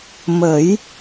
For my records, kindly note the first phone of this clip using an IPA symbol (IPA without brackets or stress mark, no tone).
m